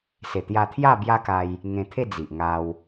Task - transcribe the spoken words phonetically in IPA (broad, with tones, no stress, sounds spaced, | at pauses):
s e˨˩ t̪ j a˧ t̪ʰ j a˥˧ b j a˦ k a˧ j | ŋ ẽ˧ t̪ʰ e˥˧ d͡z i˨ ʔ ŋ a˧ w